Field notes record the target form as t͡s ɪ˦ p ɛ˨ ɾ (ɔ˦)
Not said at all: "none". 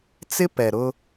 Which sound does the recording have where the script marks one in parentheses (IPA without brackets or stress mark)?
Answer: ʊ˦